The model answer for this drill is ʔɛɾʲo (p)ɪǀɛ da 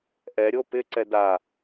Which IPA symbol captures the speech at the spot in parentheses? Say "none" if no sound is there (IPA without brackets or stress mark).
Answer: p